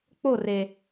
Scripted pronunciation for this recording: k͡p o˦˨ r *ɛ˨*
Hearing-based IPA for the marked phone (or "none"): e˨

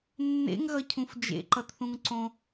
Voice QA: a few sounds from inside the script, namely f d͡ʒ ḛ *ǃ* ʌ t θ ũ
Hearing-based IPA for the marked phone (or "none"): ǃ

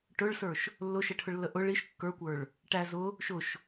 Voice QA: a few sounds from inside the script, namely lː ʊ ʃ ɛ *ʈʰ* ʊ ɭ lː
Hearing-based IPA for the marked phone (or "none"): ʈʰ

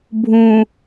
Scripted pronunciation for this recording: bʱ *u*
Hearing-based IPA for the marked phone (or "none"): ũ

